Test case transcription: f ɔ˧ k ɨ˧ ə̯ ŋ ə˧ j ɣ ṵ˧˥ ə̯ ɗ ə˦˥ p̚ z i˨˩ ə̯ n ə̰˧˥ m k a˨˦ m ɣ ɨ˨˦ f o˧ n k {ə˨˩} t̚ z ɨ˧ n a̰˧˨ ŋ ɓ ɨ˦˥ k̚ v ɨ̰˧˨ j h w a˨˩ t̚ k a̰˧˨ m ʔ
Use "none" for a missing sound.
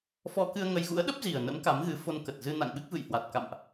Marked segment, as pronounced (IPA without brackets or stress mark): ə˨˩